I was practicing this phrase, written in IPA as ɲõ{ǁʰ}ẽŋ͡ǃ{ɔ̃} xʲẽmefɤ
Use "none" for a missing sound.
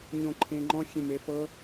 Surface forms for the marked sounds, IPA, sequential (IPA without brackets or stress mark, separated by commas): ǃʰ, ɔ̃